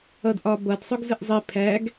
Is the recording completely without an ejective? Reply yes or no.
yes